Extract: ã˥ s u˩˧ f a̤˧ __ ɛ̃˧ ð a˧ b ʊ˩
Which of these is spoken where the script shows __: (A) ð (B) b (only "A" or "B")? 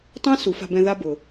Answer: B